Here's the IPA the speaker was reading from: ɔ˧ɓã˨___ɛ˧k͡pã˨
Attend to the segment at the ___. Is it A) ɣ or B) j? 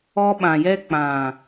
B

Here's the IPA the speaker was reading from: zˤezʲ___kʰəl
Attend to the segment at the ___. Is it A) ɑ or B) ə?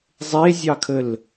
A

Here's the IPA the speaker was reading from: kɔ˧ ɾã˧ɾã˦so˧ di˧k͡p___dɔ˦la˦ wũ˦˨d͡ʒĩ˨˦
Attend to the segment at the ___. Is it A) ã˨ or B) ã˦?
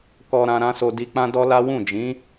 B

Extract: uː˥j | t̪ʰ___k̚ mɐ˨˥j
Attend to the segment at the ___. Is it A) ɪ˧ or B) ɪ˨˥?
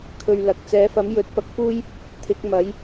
B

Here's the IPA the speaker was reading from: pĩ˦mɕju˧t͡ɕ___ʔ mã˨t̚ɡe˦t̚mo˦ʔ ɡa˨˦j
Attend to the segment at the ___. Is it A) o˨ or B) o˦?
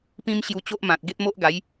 B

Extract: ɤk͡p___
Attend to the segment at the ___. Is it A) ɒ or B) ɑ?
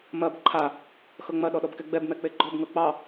B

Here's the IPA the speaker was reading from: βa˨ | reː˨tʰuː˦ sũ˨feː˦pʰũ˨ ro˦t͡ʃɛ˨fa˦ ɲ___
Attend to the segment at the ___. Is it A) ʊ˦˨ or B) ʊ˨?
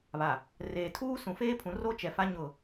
A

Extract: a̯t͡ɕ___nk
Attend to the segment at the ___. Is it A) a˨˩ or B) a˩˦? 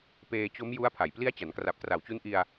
B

